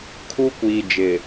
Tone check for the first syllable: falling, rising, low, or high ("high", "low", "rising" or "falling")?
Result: high